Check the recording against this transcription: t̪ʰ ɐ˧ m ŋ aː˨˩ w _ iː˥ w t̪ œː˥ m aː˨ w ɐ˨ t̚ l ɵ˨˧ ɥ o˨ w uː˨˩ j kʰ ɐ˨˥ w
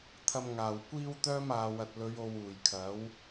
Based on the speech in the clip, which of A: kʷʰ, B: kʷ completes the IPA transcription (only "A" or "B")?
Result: B